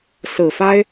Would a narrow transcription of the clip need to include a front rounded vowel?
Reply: no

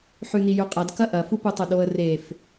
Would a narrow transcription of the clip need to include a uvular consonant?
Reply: yes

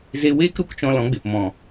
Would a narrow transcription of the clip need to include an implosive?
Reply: no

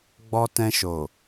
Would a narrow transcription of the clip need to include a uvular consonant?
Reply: no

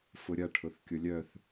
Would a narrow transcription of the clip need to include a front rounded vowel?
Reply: yes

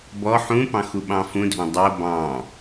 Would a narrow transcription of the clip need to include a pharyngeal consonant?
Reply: yes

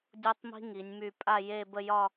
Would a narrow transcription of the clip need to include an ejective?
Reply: yes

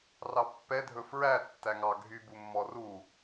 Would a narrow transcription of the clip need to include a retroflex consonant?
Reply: no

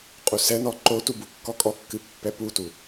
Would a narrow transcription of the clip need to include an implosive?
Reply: no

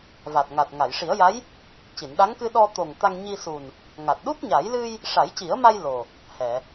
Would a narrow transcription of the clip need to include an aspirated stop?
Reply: no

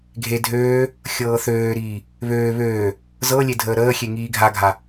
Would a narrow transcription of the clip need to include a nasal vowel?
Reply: no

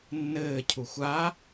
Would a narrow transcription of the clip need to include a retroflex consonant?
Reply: no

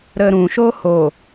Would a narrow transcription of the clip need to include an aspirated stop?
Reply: no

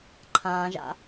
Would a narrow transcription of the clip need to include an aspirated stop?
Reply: yes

